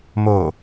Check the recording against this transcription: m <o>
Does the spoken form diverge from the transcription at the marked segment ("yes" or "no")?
no